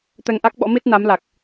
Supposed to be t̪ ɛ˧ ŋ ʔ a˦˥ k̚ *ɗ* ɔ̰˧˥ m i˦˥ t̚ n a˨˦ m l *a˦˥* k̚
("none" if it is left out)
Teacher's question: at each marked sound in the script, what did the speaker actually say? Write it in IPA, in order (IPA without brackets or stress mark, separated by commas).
ɓ, a˨˩